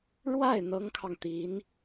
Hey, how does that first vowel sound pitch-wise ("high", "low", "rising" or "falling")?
falling